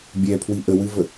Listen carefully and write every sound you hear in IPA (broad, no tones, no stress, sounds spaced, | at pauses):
bʲ ɛ pʰ w i ʔ ə w ɨ v ə